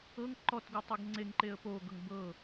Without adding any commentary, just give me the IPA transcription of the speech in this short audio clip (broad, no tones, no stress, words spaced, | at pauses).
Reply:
ɤŋ ǃɔtɡu tˤɤɡŋ͡ǀeŋǃeə̯ poɡɤŋ bɤ